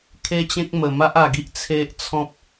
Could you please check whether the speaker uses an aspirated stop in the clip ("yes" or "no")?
yes